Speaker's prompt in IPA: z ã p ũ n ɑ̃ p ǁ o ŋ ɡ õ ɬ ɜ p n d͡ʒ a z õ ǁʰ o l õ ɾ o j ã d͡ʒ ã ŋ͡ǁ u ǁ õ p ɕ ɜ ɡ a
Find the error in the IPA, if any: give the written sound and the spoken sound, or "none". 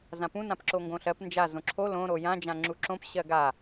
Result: ɑ̃ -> ã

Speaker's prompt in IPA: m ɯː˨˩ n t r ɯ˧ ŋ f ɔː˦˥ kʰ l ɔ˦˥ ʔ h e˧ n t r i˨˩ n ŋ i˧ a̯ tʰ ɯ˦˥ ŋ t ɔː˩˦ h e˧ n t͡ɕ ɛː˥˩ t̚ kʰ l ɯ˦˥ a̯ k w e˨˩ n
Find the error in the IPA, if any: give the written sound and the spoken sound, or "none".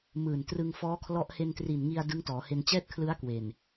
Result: tʰ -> d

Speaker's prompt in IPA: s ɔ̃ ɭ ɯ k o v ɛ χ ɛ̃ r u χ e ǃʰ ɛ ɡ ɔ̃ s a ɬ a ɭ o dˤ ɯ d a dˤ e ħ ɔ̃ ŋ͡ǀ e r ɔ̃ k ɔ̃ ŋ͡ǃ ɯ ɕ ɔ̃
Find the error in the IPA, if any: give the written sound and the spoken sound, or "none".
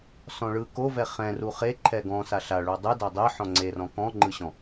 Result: none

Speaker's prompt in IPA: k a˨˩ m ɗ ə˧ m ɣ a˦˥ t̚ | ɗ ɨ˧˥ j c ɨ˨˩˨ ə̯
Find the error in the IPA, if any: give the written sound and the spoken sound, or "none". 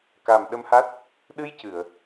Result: ɣ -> h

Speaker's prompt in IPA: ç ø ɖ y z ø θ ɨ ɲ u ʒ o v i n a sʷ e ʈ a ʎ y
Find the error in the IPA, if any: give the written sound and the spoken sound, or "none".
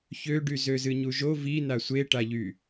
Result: θ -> z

